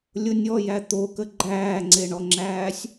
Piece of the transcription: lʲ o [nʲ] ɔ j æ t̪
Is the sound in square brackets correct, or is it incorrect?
correct